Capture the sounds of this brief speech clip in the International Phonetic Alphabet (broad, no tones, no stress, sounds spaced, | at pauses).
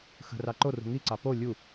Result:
x ə̤ r ɑ ǃ o r ṳ ŋ i ǀ ɑ p o lʲ u